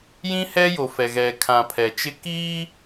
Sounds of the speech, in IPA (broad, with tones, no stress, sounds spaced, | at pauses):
j ĩ˦ h ɛ˦ j o˨ f ɛ˨ ɣ ɛ˨ kʰ ã˨ pʰ ɛ˨ t͡ʃ ɪ˦ k iː˦